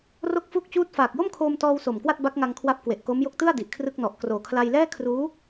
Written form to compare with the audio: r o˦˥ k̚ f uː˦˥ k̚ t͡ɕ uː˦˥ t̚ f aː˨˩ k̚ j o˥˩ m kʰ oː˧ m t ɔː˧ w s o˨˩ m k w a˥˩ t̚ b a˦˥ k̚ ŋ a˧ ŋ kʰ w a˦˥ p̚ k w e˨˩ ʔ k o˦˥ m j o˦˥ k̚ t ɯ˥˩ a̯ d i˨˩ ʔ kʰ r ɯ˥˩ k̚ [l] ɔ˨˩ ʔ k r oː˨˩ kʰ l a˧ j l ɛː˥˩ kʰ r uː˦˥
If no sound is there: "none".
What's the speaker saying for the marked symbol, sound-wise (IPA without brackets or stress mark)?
n